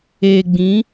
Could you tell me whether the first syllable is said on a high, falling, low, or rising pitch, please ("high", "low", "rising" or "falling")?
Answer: low